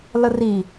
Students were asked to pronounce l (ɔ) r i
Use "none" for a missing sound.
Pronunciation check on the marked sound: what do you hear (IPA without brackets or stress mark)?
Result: ə